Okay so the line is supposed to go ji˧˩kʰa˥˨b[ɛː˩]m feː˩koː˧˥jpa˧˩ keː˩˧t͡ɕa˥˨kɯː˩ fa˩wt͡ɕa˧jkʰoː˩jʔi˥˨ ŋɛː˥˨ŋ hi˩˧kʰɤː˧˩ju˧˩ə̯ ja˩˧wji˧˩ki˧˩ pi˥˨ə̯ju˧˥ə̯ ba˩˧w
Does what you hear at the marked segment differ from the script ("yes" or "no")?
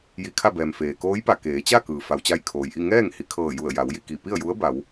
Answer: no